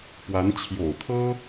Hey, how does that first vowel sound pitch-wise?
rising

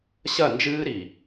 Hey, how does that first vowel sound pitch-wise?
falling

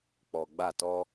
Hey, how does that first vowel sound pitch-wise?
low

